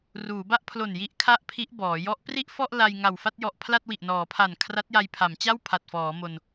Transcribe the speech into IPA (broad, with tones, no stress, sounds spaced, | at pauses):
r uː˩˦ b a˥˩ ʔ pʰ l o˨˩ n j i˦˥ ʔ kʰ a˥˩ ʔ pʰ i˦˥ ʔ b ɔː˩˦ j ɔ˦˥ ʔ p r i˥˩ ʔ f ɔ˥˩ ʔ l a˧ j ŋ a˨˩ w f a˥˩ t̚ j ɔ˨˩ ʔ pʰ l a˥˩ t̚ w i˨˩ ʔ n ɔː˩˦ pʰ a˨˩ n kʰ r a˦˥ t̚ j a˧ j pʰ a˩˦ m t͡ɕ a˥˩ w pʰ a˨˩ t̚ f ɔː˩˦ m o˧ n